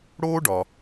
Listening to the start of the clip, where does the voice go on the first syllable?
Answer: high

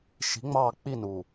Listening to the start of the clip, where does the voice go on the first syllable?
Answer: rising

